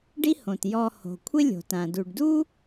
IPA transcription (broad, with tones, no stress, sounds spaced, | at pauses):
ɖ i˥ h õ˩ t j ɔ˧ h o̤˩ kʷʰ ɪ˥ lʲ o̤˩ t ã˩ d u˩ ɖ d u˥